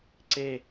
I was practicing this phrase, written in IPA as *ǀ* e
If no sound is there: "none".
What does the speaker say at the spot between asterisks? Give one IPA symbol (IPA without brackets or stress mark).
ǀ